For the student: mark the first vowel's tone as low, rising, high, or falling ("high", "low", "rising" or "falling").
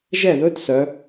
falling